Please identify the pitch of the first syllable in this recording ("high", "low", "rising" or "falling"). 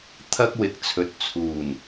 high